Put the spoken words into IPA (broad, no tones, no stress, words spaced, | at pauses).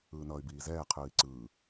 ɯːnʌːy̯biːzɛː qʰɯːi̯ǀɯː